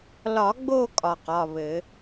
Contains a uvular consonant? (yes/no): yes